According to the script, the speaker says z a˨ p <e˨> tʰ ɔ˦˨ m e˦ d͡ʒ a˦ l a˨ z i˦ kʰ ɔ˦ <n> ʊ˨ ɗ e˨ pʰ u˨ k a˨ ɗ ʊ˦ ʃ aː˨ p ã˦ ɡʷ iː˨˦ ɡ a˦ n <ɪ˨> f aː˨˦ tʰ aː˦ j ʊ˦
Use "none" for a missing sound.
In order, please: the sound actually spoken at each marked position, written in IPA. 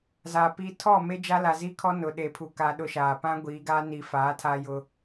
i˨, n, i˨

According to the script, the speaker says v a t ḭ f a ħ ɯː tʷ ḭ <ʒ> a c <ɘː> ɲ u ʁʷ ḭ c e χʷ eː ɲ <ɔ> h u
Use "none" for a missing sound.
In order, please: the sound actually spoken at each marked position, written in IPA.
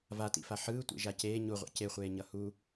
ʒ, eː, ʌ

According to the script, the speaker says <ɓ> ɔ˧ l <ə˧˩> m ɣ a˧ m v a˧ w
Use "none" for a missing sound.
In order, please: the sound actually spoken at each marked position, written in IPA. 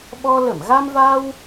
ɓ, ə˧˩

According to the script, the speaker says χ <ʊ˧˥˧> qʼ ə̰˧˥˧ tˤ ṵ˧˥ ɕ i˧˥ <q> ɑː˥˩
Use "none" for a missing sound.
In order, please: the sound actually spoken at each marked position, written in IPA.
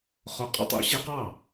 ʊ˧˥˧, q

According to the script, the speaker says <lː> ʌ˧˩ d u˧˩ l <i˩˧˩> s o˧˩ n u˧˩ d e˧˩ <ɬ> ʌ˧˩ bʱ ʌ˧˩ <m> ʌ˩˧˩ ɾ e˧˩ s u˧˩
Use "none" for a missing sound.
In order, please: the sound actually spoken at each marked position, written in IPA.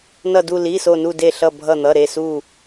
n, i˩˧˩, ɬ, n̪

